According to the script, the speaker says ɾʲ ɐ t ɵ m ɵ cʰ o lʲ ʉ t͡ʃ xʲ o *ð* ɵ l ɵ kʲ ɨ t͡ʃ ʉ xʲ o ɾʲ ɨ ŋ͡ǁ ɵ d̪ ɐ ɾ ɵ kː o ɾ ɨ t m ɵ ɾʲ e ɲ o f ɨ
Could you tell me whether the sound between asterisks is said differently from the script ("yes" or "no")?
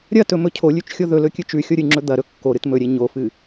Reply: no